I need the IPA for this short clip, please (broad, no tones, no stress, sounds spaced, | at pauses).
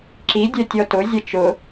ǁ i dʲ œ tʲ ɔ t ʊ zʲ ɐ t͡ʃ ʊ